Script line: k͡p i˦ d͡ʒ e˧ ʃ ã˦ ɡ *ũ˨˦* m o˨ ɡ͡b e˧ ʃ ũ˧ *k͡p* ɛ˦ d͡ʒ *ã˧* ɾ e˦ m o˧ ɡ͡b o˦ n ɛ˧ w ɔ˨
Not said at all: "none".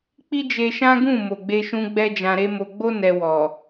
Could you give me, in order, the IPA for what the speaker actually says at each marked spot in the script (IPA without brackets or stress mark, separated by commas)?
ũ˦˨, ɡ͡b, ã˧